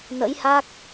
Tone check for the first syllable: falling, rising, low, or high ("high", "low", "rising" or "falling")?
rising